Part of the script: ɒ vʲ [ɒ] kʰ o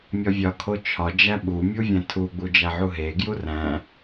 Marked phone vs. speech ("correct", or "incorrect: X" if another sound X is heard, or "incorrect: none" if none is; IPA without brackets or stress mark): correct